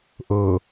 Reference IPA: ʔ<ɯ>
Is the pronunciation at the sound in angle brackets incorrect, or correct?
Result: incorrect